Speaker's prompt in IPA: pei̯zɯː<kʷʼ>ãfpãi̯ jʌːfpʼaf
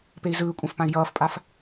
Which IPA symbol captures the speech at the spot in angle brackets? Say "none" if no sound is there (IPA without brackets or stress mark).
kʷʼ